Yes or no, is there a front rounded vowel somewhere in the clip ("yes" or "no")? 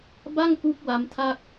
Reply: no